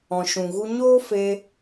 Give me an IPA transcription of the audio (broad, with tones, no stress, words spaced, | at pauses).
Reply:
ɔ̃˨ʃũ˨ ɣu˧ɲoː˦fe˧